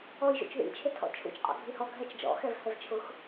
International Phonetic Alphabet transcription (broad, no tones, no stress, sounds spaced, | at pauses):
ɔ j ʒ ṵ t͡ʃ ð ḭ t͡ʃʰ ɪ tʰ ɔ̰ t͡ʃʰ ṵ t͡ʃ qʼ ɔ̰ ɡʱ i h ɔ ɡʱ ɛ t͡ʃ d͡ʒ ɔ̰ x ɛ v h ɛ v t͡ʃʰ ʊ x